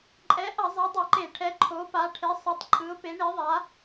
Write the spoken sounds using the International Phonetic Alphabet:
ǃʼɛ˨˥ʔʌ˧˩˧ zˤɛ˨˥dˤʌ˧˩˧ǃe˧˩˧ʈʰɛ˨˥ ǃʰo˨˥pa˨˥ʈʰe˨˥sˤʌ˨˥tˤ ǃʼɯ˨˥ʊ̯pe˨˥ɳi˨˥ðˤa˨˥

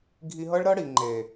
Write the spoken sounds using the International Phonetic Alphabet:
ɡʱi˧ɦɤ˦ɭɾɤ˦ɽi˨ ŋ͡ǃe˨

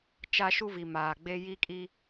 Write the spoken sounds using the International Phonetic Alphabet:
t͡ʃa˦ʃu˦vi˨ maː˨ɡ͡be˦ ji˦kʼi˦

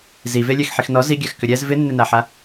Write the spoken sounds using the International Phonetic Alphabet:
zivelʲɛx ħixnɔ ziɡʲaxkʏ ɾʲɛz vɪnːɪnaħa

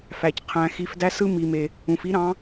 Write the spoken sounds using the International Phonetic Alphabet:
fæ˧cqʰæ̃˧ xi˧fdæ˦sɯ˦ mi˨me˨ | ũ˨fi˦ɾɑ̃˨˦

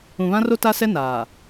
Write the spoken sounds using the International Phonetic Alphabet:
ũ˨βã˦ro˦ ta˦sɛ˦ naː˨

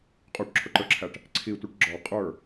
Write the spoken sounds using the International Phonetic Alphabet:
qʼuʈǁʰʊǃə˞ǁʰæʈ | ǀʰitʷʌʈ ɡ͡ǁɔ qʼə˞

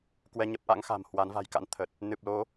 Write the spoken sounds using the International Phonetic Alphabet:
kwɛ˧ɲə˦˥p̚ʔa̰˧˥ŋ xa̤˨˩m hwa˨˦nva̤˨˩jka̰˧˥n t̪ʰə˨˩t̚ | nɨ˨˩p̚lo˨˦

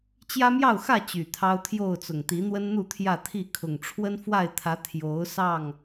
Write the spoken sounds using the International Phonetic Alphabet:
t͡ɕjä˦mjɑ˥˨ʊ̯xä˥˨ t͡ɕy˨˩t̪ʰɑ˦ʊ̯t̪ʰjo˥˨ʊ̯t͡sʊ˨˩ŋ t̪i˨˦n̪wə˦nn̪u˥˨ t̪ʰjä˥˨t̪ʰi˥˨kʰʊ˨˩ŋ ʈ͡ʂʰwə˦nfwa˥˨ɪ̯t̪ʰä˨˦ t̪ʰjo˨˦ʊ̯sɑ˥˨ŋ

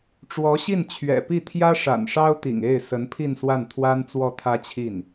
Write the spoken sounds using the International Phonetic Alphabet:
ʈ͡ʂwɔ˧˥ɕi˥˩nt͡ɕʰɥɛ̰˨˩pi˥˩ t̪ʰjä˥ʂa̰˨˩nʂɑ˥ʊ̯t̪ḭ˨˩ŋ e˥˩ɪ̯ sə˧˥npʰi˥˧nswa˥˩nt̪ʰwa˥n t͡swɔ˥˩t̪ʰä˥t͡ɕʰi˥˩n

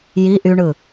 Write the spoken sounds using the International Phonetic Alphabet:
ji ʔyɳɯ

